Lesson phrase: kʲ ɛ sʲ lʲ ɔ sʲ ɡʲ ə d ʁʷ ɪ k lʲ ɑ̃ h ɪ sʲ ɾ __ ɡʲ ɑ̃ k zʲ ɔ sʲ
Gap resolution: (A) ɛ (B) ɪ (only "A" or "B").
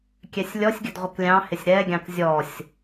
A